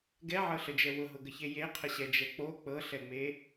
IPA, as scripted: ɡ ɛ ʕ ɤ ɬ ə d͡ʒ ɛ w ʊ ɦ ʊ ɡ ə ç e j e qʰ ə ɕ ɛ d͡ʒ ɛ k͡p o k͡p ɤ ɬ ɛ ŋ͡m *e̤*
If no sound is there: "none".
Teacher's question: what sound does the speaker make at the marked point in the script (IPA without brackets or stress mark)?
e